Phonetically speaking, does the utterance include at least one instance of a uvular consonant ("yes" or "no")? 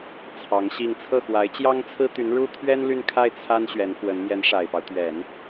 no